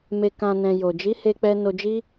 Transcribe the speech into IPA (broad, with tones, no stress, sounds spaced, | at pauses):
m e˨ k ã˨ n ɛ̃˨ j o˨ d͡ʒ i˨˦ h e˧ k͡p ɛ˧ n o˧ d͡ʒ i˦